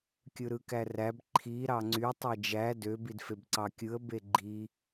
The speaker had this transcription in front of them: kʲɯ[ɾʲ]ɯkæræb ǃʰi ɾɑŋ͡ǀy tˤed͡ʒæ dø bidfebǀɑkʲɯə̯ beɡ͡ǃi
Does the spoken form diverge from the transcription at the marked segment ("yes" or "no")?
yes